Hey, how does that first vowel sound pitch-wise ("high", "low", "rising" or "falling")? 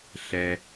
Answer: low